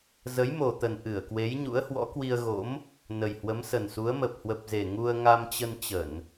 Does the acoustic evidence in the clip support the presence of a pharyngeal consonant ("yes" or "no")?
no